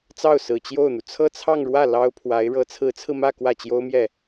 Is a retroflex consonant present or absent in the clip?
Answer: present